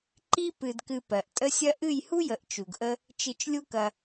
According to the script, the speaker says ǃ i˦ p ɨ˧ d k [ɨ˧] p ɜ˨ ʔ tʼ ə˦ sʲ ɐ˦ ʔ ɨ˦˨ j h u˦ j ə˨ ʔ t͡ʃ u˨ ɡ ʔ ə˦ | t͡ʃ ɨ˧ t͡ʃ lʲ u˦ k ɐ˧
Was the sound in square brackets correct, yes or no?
yes